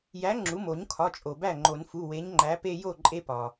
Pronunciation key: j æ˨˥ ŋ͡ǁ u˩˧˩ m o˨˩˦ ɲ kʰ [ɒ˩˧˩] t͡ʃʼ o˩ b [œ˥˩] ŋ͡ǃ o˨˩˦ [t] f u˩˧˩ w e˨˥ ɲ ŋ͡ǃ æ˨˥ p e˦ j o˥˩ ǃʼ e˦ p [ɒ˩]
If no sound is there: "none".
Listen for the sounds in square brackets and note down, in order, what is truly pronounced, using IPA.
ɒ˩˧˩, æ˥˩, n, ɒ˩

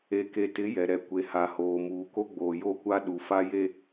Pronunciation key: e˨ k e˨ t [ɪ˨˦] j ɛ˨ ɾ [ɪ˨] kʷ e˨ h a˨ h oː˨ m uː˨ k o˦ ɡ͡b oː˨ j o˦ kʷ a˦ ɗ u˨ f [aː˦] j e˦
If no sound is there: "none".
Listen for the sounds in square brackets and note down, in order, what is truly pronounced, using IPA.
ɪ˨˦, ɛ˨, a˦

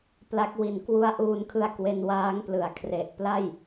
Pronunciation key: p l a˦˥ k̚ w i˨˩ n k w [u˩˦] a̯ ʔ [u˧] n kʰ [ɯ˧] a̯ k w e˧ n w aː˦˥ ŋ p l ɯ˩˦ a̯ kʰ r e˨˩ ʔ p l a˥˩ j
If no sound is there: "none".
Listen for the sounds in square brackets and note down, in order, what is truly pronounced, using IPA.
u˦˥, uː˧, ɯ˧

